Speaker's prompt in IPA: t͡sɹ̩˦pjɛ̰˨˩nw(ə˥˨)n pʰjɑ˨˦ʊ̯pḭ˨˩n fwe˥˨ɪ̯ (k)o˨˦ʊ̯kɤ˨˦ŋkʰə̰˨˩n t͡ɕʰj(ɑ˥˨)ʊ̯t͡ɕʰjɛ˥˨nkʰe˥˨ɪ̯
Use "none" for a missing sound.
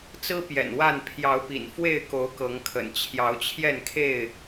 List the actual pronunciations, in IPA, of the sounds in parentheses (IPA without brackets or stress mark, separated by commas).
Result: a˥˨, k, ɑ˨˦